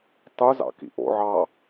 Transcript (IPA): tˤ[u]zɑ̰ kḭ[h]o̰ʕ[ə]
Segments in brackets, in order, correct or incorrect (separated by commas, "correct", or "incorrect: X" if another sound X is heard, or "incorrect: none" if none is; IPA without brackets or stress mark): correct, incorrect: ʔ, incorrect: ɑ